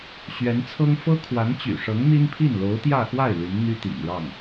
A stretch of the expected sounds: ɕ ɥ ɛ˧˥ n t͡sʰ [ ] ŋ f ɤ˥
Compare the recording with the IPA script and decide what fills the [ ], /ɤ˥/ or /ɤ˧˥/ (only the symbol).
ɤ˥